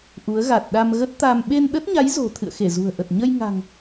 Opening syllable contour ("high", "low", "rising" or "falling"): rising